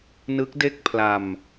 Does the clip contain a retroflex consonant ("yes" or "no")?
no